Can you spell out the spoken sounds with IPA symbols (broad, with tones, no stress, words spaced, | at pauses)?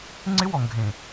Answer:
ŋ͡ǀɪ˦wɔ˨ŋɡʱẽ˨